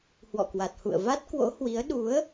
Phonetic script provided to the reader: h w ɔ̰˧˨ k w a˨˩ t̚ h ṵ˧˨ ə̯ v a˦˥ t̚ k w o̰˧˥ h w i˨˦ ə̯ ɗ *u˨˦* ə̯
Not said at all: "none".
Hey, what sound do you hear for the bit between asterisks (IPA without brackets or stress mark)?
u˨˦